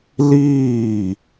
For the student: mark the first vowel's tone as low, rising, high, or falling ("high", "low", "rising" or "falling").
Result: falling